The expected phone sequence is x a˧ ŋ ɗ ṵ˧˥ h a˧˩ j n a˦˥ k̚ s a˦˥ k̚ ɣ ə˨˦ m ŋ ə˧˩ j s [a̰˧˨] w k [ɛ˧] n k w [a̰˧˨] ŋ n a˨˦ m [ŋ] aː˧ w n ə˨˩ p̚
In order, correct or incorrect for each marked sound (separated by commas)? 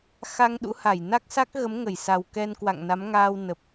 incorrect, correct, correct, correct